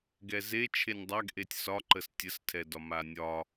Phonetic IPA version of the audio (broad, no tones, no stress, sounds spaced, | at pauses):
ɡ ɛ z e t͡ʃʰ e nʲ dˤ a ɡ ʔ e tʲ s ɒ ǃ ə s tʲ ə s tʰ ɛ d ɒ m a nʲ ɒ